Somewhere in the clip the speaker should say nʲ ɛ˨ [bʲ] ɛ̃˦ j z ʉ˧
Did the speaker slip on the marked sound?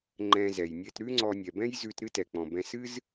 yes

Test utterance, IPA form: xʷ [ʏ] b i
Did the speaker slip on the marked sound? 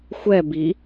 yes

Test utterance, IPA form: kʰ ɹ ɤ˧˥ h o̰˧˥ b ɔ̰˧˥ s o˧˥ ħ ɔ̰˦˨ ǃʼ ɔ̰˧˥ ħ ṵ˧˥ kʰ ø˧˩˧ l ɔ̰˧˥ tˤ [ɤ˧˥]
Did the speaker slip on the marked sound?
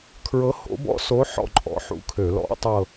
yes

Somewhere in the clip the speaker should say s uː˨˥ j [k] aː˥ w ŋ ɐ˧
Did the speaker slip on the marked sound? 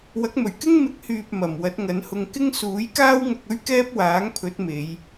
no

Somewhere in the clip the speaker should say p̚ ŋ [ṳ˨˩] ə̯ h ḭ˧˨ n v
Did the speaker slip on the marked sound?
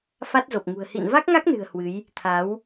no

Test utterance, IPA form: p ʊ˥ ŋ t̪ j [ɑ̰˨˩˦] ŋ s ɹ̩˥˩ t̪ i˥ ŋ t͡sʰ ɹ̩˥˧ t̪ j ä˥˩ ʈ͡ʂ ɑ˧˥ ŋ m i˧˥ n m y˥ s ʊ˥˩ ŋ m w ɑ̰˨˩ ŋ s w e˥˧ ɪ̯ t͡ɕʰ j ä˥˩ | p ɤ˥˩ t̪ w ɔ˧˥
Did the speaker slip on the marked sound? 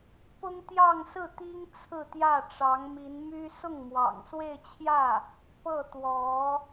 yes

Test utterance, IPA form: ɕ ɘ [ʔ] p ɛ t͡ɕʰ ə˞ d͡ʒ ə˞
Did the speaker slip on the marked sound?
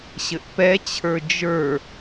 no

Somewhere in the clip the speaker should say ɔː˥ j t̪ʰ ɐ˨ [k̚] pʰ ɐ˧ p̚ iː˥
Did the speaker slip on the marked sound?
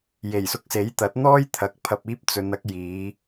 no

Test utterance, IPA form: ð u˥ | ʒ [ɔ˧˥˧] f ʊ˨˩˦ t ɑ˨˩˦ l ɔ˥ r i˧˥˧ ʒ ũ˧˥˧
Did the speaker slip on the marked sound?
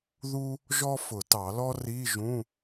yes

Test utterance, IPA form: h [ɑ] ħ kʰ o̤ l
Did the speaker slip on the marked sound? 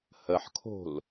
yes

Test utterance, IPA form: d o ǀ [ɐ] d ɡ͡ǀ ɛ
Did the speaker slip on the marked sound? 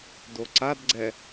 yes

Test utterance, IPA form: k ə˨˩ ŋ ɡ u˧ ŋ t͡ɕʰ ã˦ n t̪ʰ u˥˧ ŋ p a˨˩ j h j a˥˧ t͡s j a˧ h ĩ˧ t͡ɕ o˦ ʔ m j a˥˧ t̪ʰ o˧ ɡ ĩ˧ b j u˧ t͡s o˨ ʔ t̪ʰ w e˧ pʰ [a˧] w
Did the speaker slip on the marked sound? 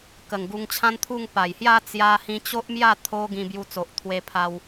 no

